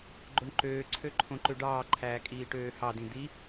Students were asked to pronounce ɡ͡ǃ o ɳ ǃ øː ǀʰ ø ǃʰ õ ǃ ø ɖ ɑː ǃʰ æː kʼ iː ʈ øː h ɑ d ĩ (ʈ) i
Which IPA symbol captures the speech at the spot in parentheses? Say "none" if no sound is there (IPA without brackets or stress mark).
d̪